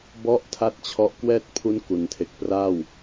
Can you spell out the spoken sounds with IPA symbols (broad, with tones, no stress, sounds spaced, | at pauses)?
b ɔ˦˥ ʔ tʰ a˥˩ t̚ t͡ɕʰ ɔ˦˥ ʔ k w ɛː˥˩ t̚ pʰ u˦˥ n k u˩˦ n tʰ e˨˩ k̚ p r a˥˩ w